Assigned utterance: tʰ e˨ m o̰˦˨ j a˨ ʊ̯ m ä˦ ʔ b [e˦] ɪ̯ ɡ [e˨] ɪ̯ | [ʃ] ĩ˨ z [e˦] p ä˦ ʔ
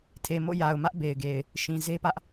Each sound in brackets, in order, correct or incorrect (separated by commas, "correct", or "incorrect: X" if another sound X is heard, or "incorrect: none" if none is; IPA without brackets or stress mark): incorrect: e˨, correct, correct, correct